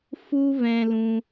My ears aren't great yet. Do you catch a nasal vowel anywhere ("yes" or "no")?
yes